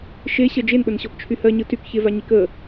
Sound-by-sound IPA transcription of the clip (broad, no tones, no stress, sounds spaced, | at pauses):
ʃ e ɕ ɜ d͡ʒ e n ɓ ə n ɕ ɔ p t͡ʃʰ y h ɜ ɲ ɯ t y k ç e v a ɲ i k ə